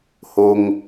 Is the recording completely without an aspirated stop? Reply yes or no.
yes